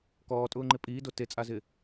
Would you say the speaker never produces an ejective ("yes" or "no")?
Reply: no